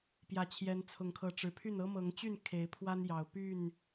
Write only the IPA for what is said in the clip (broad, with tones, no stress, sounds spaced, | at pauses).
p j ä˨˦ t͡ɕʰ j ɛ˨˦ n t͡sʰ ʊ˨˩ ŋ kʰ ɤ˨˦ ʈ͡ʂ ɻ̩˨˩ pʰ y˥˨ n ɤ˦ m ɤ˨˦ ŋ t͡ɕ y˥˨ n kʰ e˨˦ ɪ̯ pʰ w a˦ n j ɑ˨˩ ʊ̯ p y˥˨ n